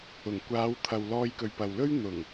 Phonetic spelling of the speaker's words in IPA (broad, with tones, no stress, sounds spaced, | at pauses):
ʊ˨˩ ŋ kʷ aː˨˧ w t̪ʰ ɐ˨ w l ɔː˧ j k ɵ˨ ɥ p ɐ˨ w l ɵ˥ ɥ n̪ ʊ˨˩ ŋ